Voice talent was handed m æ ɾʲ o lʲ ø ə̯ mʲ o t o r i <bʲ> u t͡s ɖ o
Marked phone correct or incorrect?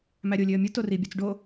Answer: correct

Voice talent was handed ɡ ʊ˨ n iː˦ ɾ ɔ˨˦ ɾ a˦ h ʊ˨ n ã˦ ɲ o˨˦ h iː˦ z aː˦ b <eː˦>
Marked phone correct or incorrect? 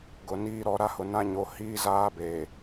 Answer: incorrect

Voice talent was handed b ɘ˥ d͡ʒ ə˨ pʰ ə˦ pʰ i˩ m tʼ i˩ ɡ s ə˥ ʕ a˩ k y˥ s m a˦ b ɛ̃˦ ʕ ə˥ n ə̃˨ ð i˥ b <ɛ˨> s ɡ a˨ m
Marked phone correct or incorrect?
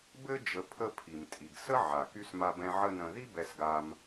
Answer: correct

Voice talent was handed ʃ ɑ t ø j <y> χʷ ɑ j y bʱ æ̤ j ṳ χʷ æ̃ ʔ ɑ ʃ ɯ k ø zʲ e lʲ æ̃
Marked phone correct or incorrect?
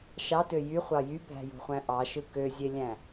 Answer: correct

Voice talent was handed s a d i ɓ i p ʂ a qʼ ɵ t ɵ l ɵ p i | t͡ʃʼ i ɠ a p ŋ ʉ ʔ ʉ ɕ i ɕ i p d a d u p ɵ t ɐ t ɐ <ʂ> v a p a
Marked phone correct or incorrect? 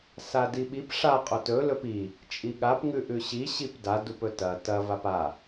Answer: incorrect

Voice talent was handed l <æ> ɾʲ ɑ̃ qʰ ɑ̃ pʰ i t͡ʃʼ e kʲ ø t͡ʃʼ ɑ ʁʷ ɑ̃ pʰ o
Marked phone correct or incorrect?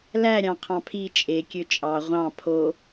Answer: correct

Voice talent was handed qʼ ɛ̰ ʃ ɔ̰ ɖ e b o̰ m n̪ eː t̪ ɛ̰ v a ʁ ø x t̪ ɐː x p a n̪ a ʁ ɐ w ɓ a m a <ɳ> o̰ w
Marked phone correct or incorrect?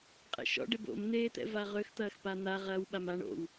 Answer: correct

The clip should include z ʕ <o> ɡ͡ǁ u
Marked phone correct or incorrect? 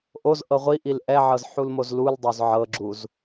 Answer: incorrect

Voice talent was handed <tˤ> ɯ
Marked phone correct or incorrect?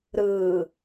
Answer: incorrect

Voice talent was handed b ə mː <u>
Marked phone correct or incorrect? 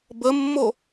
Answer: incorrect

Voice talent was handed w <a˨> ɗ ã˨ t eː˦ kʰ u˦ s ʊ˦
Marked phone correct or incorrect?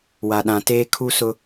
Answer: correct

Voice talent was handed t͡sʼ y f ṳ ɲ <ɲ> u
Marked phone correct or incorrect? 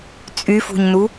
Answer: incorrect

